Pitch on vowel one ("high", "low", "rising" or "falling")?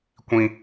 high